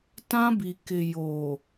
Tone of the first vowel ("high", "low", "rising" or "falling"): high